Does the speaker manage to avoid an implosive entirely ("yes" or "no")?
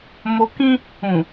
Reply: yes